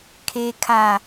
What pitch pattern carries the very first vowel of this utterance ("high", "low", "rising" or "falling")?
low